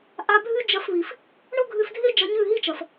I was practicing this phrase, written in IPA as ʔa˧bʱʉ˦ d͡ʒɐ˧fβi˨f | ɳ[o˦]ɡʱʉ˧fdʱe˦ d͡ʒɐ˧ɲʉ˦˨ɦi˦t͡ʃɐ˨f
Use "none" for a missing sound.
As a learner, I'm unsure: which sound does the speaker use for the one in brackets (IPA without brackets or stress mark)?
o˦